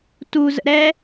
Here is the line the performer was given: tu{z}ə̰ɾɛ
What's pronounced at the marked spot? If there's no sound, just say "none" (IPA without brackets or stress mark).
z